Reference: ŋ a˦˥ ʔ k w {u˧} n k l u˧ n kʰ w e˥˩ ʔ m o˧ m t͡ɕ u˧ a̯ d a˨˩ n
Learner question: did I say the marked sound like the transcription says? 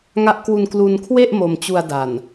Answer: yes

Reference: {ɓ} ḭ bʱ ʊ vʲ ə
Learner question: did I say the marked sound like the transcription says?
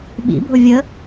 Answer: yes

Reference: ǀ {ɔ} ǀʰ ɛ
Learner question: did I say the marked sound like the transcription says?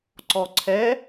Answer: yes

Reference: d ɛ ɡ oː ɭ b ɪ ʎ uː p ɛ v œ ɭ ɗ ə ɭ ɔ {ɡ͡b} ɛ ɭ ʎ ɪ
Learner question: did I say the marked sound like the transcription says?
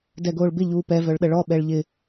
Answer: no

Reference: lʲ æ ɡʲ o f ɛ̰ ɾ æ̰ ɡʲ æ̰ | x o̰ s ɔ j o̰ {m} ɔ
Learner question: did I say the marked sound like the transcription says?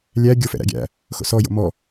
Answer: yes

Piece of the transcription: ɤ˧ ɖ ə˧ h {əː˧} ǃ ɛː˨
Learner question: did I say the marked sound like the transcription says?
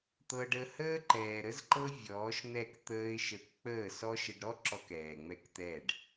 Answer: no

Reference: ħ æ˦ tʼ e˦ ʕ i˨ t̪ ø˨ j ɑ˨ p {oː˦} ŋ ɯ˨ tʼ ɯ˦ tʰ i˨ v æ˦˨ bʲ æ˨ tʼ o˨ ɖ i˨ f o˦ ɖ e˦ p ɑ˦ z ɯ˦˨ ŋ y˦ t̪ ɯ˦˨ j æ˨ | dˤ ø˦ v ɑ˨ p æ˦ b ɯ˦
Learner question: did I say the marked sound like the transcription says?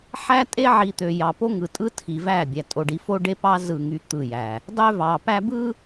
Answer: no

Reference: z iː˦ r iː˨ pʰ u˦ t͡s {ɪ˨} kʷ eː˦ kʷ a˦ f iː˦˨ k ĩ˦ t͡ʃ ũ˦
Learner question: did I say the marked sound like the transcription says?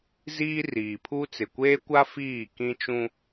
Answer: yes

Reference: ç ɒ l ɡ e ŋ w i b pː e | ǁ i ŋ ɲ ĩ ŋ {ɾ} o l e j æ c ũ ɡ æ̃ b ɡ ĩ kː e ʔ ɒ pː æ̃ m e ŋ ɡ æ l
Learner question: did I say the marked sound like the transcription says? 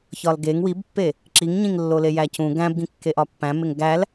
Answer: no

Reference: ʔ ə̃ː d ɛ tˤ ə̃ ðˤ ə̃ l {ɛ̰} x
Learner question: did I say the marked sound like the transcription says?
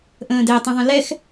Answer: no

